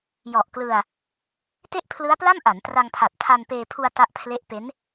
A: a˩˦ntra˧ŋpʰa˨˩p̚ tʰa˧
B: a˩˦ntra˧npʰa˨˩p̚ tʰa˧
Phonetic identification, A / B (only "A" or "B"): A